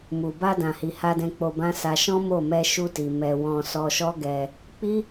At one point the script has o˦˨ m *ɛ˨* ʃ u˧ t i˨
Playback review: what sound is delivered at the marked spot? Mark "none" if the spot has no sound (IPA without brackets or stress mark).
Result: ɛ˧